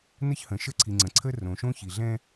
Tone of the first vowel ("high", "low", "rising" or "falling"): high